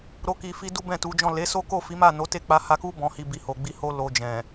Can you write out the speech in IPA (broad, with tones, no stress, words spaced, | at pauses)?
ɾo˧ki˨fi˧ du˦bɛ̃˦˨tu˨˦d͡ʒɔ̃˦˨ le˨˦so˦ko˦˨fi˨˦ ma˦˨no˨˦te˦ k͡pa˧ha˧ku˦ bɔ̃˧hi˧bi˨ ho˨ɡ͡bi˧ ho˧lo˨ d͡ʒɛ̃˨